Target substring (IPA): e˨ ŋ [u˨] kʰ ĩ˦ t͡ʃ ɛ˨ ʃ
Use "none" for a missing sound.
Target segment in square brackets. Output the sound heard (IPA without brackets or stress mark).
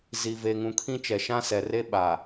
ũ˨